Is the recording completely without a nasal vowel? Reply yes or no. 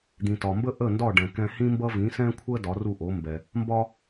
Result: no